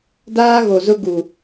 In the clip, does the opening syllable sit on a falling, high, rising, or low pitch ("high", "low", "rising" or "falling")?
high